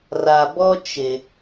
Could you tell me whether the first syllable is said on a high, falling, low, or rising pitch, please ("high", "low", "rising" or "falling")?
low